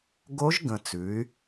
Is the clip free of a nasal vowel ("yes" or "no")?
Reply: no